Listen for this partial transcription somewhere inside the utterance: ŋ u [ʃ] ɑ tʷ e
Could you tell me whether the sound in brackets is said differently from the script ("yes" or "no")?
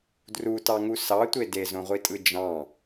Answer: yes